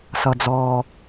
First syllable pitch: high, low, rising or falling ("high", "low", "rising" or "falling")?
low